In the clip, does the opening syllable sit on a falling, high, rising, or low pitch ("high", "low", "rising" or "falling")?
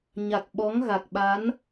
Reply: low